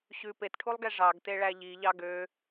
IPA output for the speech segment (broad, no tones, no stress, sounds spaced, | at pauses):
ɕ ʉ p e t ʈʰ u lˠ ɡ ɛ ʐ ɑ ɡ t e ɭ æ ʎ i ʎ ɑ ɡ ø